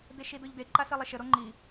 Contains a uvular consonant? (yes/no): no